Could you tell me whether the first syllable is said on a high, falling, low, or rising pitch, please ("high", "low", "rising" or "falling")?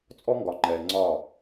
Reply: high